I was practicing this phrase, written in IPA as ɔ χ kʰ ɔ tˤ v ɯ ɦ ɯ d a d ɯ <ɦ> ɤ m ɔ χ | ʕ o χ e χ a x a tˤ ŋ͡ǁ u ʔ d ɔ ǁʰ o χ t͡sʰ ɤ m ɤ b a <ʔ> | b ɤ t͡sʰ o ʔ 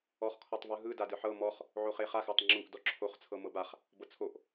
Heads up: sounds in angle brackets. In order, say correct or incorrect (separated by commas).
incorrect, incorrect